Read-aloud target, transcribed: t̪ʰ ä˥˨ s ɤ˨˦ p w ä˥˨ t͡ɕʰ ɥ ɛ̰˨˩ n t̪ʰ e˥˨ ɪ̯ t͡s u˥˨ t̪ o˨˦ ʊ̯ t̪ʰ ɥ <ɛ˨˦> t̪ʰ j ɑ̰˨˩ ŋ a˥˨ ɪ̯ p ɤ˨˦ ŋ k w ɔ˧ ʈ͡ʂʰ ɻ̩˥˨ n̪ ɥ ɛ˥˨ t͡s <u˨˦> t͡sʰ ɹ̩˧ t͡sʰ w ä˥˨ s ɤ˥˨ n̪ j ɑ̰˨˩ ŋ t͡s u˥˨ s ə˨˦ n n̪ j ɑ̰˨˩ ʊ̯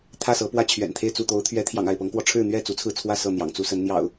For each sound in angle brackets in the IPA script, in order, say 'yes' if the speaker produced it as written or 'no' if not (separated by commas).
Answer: yes, yes